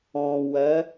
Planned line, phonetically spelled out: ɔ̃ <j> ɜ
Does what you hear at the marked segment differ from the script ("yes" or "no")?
yes